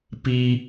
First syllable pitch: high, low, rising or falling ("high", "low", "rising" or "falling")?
low